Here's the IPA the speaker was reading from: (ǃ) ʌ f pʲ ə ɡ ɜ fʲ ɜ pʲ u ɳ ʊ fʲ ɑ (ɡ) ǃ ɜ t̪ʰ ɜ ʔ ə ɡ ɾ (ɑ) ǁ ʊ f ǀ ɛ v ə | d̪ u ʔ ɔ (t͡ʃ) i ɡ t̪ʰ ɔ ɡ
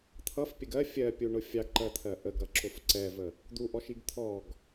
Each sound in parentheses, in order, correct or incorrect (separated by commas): incorrect, correct, incorrect, incorrect